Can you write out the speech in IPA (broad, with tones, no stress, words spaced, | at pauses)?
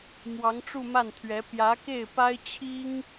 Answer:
mwɑ˧˥ŋʈ͡ʂu˥˧ma˥˩nt̪ʰɥɛ˧˥ pjä˧˥ke˥˩ɪ̯pa˥ɪ̯ t͡ɕʰi˥ŋ